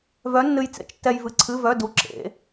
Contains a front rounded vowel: yes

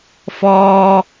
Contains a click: no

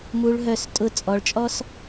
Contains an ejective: yes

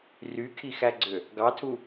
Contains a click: yes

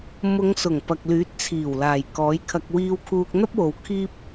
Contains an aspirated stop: yes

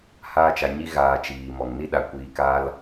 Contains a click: no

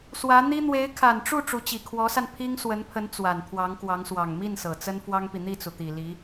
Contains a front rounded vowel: no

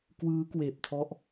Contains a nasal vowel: no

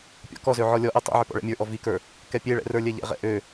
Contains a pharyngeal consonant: yes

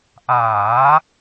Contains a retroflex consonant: no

